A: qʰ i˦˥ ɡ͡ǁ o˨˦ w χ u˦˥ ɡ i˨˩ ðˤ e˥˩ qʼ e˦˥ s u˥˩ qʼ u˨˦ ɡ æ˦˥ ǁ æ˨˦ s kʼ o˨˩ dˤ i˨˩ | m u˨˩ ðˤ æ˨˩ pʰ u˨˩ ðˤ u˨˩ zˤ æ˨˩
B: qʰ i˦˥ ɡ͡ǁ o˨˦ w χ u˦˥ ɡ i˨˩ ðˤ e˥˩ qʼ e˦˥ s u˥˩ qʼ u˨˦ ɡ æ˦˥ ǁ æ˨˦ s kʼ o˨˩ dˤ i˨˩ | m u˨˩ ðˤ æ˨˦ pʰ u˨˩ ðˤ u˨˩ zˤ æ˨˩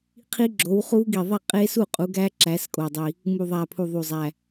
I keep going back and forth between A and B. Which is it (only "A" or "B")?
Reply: A